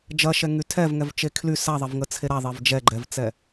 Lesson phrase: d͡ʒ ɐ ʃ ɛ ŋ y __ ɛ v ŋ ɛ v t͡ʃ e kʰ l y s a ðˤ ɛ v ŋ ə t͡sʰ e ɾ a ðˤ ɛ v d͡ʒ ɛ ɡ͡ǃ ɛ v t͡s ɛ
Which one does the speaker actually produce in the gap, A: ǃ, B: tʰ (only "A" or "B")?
B